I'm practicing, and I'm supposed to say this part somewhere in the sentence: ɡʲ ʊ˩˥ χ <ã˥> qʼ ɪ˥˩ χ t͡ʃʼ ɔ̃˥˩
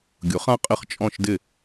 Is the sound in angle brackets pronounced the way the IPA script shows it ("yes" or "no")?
yes